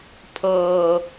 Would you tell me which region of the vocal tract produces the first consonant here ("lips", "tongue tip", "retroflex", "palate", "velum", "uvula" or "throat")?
lips